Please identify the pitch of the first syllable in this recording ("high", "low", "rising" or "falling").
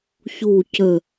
falling